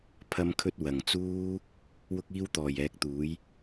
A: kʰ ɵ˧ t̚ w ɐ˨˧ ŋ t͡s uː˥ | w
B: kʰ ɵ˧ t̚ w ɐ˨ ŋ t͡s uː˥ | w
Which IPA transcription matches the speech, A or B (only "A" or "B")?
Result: B